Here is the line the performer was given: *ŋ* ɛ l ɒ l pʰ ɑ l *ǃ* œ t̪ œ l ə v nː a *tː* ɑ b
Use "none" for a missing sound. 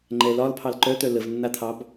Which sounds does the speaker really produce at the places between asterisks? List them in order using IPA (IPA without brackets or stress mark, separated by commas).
ŋ͡ǃ, ǃ, t̪ʰ